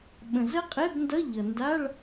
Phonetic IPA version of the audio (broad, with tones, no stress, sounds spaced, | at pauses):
ɓ ə̃˩ z ə˦˥ qʼ e˧˥˧ b n d ʌ˧˥˧ ʎ ʌ˩ n d a˧˥˧ ɭ